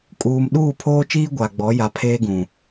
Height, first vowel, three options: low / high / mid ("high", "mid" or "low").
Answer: high